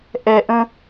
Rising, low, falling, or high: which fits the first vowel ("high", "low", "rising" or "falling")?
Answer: low